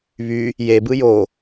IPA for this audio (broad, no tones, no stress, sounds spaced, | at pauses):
β y | j e b ɯ j o